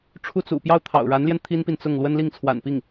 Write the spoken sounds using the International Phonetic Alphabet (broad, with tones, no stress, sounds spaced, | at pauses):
ʈ͡ʂʰ u˥˩ t͡s ṵ˨˩ p j ɑ˥˩ ʊ̯ t̪ʰ ɑ̰˨˩ ʊ̯ ɻ a˧˥ n l j ɛ˧ n t̪ʰ i˥ n p i˨ n t͡s ʊ˥˩ ŋ l w ə˥ n l i˥˩ ŋ t͡sʰ w a̰˨˩ n p i˥˩ ŋ